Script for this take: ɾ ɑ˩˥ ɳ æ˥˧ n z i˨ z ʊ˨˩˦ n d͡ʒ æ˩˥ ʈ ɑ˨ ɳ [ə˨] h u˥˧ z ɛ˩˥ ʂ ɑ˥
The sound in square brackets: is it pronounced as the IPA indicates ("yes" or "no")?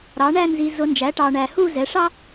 no